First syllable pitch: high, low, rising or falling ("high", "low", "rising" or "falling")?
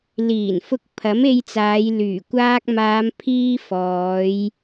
low